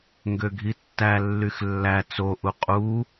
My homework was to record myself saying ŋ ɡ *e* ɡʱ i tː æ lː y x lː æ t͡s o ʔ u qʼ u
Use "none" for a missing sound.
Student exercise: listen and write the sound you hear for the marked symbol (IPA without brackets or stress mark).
ø